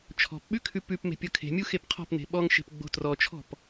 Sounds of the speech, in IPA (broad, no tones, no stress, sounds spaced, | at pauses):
t͡ʃʰ ɔ̤ p ɓ ʉ kʰ ʉ p ʉ p m e̤ pʲ ɤ kʰ e̤ mʲ u x e p qʰ ɔ̤ p n e̤ ɓ ɔ ŋ ʃ e̤ p ɡ͡b o̤ t r ɔ t͡ʃʰ ɔ̤ p